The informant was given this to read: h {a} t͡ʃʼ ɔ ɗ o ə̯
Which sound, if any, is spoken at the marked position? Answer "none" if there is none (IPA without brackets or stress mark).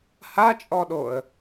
a